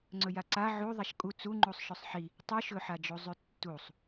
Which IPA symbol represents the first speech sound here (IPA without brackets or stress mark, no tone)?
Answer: ŋ͡ǀ